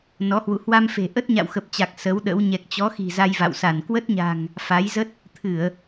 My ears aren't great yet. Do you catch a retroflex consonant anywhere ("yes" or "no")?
no